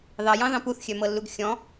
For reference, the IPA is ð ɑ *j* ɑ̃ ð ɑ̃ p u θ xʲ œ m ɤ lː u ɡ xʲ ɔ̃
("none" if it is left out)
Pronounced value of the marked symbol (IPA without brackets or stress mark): j